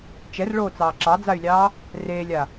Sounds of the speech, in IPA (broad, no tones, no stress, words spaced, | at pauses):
t͡ʃɛrɭoːt͡sɑː ǁɑd͡zay̯lʲɑː | reːlʲa